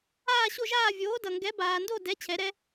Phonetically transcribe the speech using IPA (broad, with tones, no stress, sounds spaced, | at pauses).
aː˥˧ ɕ o˥˧ ʒ aː˥˧ vʲ oː˨˥ d ʌ˨ ŋ ɡ ɛ˨˥ b aː˨ n d o˥˧ d ɛ˨˥ t͡ɕʰ ɛ˨˩˦ ɾ ɛ˨˥